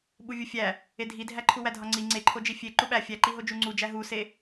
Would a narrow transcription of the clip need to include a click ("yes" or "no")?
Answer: yes